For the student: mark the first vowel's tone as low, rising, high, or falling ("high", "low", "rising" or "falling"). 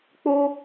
high